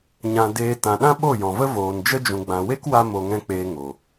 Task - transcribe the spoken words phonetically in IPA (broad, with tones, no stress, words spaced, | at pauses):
ɲã˧ deː˧ tã˨ɗã˦ ɓo˦˨jɔ̃˨və˦ voː˨nd͡ʒə˦d͡ʒũ˨ɡ͡bã˨ we˦kwa˧ mo˧ŋɛ̃˦k͡peː˧ŋo˨